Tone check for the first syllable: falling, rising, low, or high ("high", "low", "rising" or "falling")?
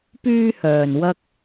high